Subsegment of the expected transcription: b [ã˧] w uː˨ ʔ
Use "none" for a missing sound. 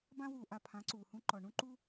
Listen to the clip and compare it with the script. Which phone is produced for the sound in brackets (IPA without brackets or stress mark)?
ã˧